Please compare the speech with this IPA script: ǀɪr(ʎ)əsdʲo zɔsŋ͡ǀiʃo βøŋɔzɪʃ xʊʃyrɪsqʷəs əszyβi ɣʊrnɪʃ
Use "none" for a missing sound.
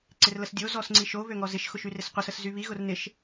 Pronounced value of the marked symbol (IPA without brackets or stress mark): l